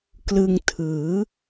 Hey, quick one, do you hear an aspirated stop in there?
yes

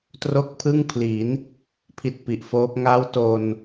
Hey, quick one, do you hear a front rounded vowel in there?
no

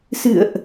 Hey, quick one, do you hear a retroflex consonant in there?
no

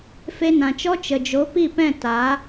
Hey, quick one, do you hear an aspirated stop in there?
no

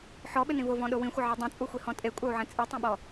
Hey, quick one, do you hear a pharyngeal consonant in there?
yes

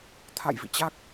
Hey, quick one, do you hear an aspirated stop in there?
yes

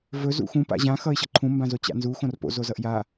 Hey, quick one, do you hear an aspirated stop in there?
yes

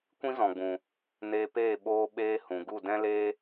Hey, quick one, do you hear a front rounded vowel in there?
no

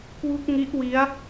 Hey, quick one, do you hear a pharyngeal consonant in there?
no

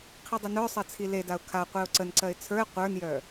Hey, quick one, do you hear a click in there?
yes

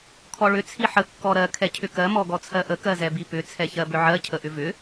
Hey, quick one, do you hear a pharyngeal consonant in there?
yes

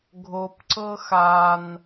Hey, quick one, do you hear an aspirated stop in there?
no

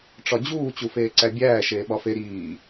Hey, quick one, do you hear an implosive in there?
yes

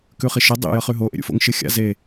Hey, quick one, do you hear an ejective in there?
no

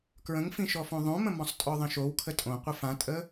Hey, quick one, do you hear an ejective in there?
yes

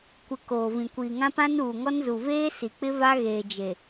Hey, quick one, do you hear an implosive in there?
no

